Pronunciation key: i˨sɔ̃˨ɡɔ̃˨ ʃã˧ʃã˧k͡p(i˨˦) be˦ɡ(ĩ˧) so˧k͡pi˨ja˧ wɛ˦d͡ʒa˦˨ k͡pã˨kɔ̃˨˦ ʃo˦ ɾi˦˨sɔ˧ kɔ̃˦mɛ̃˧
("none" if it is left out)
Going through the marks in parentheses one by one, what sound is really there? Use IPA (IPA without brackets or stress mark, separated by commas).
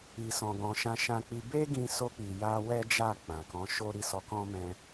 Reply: i˧, ĩ˧